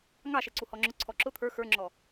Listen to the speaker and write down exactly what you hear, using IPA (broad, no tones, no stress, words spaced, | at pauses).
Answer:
ŋɑʃɛ ǀuhɔŋ͡ǁʊǀʰɔ ǁʊ t̪ʰə˞ xə˞ŋ͡ǁɔ